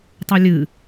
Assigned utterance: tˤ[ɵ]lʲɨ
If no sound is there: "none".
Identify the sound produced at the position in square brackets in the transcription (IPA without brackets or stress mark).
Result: ɵ